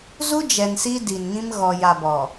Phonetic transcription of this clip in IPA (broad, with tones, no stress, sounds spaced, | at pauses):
z u˦ d͡ʒ ɛ˨ n s i˦ d i˨ n ŋ ĩ˦ m ɣ ɔ˨ j a˨ b ɔ˨